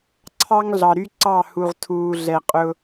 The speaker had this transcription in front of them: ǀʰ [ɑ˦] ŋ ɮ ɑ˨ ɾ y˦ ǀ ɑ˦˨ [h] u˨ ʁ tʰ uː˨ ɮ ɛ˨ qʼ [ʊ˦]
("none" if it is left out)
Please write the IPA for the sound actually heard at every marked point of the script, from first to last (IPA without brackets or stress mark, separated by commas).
ɑ˦, h, ʊ˦